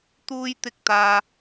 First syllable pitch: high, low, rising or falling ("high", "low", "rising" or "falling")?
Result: high